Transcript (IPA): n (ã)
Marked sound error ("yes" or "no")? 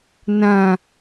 no